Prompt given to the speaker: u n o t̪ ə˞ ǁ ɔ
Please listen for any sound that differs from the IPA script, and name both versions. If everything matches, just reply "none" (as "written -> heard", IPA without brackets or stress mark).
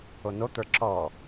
u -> o